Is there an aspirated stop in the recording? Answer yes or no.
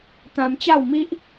no